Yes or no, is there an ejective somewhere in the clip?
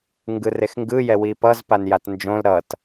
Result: no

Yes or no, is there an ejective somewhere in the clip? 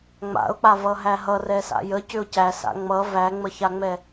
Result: no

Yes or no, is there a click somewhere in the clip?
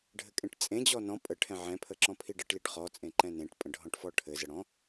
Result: yes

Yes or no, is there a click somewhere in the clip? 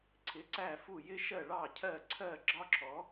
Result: yes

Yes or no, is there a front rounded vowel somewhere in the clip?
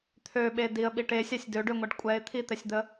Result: yes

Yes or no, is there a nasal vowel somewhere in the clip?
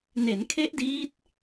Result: no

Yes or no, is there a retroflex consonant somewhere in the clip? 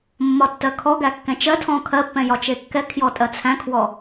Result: no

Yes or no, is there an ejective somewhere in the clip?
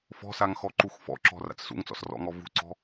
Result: no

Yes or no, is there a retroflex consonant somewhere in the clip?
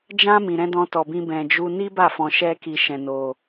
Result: no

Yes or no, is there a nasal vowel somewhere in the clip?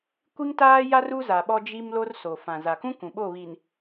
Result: yes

